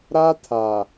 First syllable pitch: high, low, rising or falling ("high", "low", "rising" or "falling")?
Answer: high